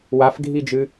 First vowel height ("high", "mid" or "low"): low